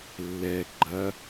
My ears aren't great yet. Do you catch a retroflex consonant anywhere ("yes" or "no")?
no